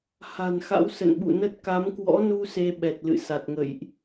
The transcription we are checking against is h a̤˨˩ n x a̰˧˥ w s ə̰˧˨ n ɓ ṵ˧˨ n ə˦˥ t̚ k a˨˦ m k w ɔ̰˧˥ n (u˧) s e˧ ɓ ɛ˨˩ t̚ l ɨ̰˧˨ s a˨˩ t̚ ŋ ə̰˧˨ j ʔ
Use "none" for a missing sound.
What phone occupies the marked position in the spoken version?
u˧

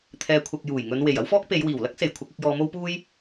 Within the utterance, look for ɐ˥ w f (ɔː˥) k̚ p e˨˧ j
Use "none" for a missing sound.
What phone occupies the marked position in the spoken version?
ɔː˥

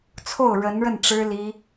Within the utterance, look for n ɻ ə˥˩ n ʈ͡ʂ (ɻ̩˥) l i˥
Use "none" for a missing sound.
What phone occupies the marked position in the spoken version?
ɻ̩˥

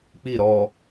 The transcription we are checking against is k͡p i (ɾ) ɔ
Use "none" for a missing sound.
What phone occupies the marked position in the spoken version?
ɾ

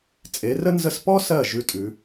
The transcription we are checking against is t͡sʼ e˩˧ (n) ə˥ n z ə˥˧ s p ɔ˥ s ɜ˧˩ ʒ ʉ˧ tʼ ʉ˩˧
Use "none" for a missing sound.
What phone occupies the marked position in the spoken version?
r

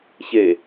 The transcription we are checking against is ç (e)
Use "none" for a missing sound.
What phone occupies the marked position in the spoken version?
e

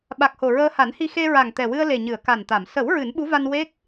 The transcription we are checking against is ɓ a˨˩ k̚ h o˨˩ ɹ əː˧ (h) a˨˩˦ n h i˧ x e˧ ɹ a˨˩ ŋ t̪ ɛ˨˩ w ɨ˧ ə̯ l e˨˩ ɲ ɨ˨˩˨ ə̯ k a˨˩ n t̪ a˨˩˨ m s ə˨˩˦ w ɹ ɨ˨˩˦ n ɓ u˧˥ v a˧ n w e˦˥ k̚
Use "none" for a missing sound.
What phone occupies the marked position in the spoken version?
h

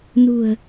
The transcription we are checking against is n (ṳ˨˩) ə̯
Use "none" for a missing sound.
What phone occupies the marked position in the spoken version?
ṳ˨˩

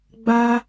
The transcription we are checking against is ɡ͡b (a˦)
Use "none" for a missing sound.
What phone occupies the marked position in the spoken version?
a˦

